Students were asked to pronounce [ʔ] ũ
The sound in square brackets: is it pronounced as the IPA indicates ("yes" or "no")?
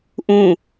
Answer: yes